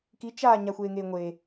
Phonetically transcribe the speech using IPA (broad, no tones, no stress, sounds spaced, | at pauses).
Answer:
k i t͡ʃ aː ɲ a xʷ eː ŋ eː ŋʷ e